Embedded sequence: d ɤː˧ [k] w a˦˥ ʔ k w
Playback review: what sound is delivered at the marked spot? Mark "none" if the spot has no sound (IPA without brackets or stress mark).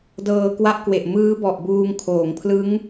k